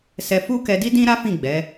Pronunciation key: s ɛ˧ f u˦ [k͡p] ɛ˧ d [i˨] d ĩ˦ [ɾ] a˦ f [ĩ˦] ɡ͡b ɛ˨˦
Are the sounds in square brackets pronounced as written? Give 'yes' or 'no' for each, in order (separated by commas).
no, no, yes, no